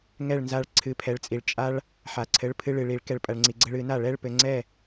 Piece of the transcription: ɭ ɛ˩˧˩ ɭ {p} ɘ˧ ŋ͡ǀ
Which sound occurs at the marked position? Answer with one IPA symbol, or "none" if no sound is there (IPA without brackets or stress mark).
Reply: p